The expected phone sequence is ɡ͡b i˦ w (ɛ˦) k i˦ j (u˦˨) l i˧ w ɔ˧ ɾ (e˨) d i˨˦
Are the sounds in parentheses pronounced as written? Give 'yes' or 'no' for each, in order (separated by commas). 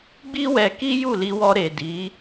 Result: no, yes, yes